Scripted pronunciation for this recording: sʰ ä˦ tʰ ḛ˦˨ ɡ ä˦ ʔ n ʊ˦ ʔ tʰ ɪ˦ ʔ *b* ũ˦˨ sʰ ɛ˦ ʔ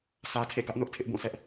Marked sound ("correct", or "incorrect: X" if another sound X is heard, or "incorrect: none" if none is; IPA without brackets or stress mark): correct